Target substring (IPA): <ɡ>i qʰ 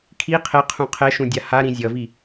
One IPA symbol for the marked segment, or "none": kʰ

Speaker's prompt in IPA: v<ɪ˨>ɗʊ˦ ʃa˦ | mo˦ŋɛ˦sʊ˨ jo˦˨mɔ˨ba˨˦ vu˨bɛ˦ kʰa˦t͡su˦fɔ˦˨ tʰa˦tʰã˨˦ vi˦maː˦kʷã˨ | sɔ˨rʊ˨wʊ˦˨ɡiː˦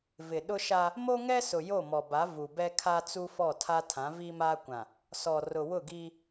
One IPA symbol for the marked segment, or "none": ɪ˨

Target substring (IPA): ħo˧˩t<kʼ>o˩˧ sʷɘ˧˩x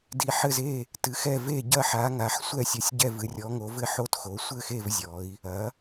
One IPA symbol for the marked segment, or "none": x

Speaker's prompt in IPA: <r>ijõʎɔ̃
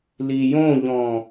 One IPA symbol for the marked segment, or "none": l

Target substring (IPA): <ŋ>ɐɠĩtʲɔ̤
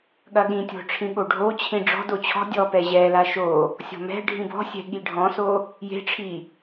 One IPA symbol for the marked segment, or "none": ɠ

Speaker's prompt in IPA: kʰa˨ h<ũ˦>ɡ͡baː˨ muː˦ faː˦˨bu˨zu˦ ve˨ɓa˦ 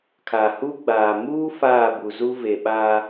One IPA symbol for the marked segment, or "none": u˦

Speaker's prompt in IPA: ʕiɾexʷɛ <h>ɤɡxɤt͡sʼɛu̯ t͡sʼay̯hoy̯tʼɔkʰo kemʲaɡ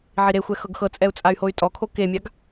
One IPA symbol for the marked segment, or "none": x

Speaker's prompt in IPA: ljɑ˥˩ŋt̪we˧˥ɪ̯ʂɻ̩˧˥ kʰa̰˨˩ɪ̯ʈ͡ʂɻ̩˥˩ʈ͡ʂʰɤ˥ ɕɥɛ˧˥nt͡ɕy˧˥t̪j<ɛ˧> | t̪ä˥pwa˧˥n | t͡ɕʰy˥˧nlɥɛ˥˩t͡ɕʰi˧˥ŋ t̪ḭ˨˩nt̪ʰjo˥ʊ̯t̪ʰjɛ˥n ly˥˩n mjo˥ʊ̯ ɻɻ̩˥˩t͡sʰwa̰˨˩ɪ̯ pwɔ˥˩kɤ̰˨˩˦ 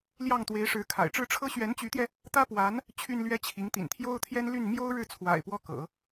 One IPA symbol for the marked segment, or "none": ɛ˧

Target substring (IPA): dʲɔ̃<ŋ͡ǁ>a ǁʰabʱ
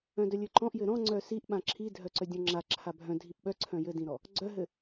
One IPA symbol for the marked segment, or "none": ŋ͡ǁ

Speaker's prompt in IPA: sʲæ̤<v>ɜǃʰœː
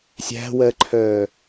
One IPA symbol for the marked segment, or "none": w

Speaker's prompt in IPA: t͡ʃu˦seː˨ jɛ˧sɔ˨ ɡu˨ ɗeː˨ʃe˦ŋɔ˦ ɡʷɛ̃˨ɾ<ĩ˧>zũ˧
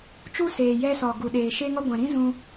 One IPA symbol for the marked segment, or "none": ĩ˦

